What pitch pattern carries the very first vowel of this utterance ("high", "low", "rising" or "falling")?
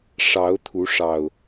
rising